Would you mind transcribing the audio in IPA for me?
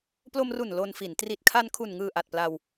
p l o˧ m r u˨˩ n l o˧ n f i˩˦ n t r i˨˩ t̚ kʰ a˧ n kʰ u˨˩ n ŋ ɯː˨˩ ʔ a˨˩ t̚ p l a˧ w

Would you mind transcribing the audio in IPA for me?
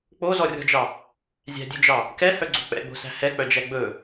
k͡p o z ɔ rʲ ɔ̤ d͡ʒ ɑ | zʲ æ̤ dʲ ʉ d͡ʒ ɑ | k ɛ h œ ɡ͡ǀ o̤ k͡p ɛ̰ ɡ͡b o̤ s æ̤ h ɛ k͡p œ d͡ʒ æ ɡ͡b ɵ

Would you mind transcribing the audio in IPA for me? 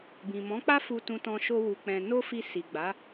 b ĩ˨ m ɔ̃˨˦ k͡p a˦ f u˧ t ũ˧ t ɔ̃˧ ʃ o˦ w u˧ k͡p ɛ̃˧ n o˦ f i˧ s i˨ ɡ͡b a˨˦

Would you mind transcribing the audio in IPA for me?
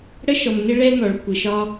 ɽ ə˥ ʃ ɔ˩ m n ɪ˥ ɭ ɛ˥ n ɔ˩ ɭ kʷ ɪ˩ ʃ ɒ˥

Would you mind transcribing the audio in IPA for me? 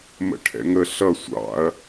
m ə̰ ʈʰ ɛ̰ ŋ ə ɬ ʌ sʷ ɑ̰ ɐ̯

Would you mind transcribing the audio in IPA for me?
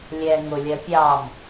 lʲ ɛ ŋ ʊ lʲ ɜ pʲ ɑ m

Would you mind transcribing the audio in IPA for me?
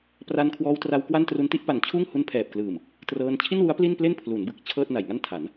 p r a˧ n kʰ w ɔː˧ w t r a˧ w k w a˥˩ n t r u˧ n t i˥˩ ʔ p a˨˩ n t͡ɕʰ uː˥˩ ŋ h u˦˥ n pʰ ɛː˨˩ p̚ k l ɯː˨˩ m | t r ɤː˧ n t͡ɕʰ i˥˩ n w u˦˥ a̯ p l i˥˩ n p l e˥˩ n pʰ l u˩˦ n b ɯ˨˩ k̚ t͡ɕʰ ɤː˥˩ t̚ n a˨˩ j ŋ a˥˩ n tʰ a˩˦ n

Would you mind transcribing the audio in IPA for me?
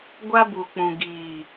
ɡʷ a˦ b u˨ k͡p ũ˨ ɡ iː˨

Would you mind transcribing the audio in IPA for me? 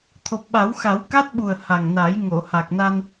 t̪ʰ o˨˩ p̚ ɓ a˨˩˦ w x a˨˩˦ w k a˦˥ t̚ ɓ u˨˩ ə̯ h a˨˩ ŋ n a˨˩˦ j ŋ o˨˩˨ h a˨˩ k̚ n a˧ n

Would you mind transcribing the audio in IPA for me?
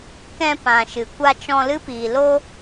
k ɛ̃˧ p ã˨ ʃ ɨ˨ kʷ a˧ t͡ʃ ɔ̃˧ l ɨ˦ p iː˨ l o˦

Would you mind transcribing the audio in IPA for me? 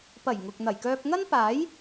p ɐ˨˩ j ŋ ʊ˨ k̚ n̪ ɐ˨˩ j k œː˧ p̚ ŋ ɐ˥ n p aː˨˥ j

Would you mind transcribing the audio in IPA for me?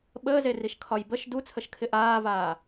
ɓ əː z e r i ʃ kʰ ɒ j b ə ʃ d u t͡sʰ ə ʃ kʰ ɪ ʔ aː v aː

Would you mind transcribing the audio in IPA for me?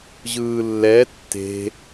ʑ ɯː lː ɛ tː e̤

